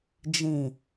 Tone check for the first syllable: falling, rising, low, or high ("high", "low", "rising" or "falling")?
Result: low